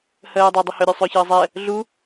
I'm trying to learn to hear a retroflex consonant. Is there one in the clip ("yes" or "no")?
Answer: no